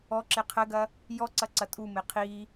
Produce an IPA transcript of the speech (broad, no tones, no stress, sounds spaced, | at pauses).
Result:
ɔ ǁ e qʰ ɘ ɡ ɐ | j ɔ ǀ ɐ ǀ ɐ tʼ u m e qʰ i